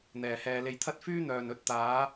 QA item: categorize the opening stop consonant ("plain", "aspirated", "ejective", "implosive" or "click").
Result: aspirated